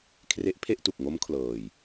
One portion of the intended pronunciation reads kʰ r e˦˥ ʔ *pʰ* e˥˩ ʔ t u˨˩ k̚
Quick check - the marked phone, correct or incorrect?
correct